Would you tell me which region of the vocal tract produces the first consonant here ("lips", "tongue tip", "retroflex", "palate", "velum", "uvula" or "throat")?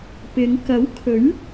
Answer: lips